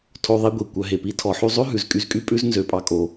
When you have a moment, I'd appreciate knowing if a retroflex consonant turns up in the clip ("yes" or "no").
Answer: no